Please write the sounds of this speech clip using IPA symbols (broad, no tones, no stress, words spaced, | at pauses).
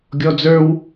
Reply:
ɡʲɔd͡zə˞w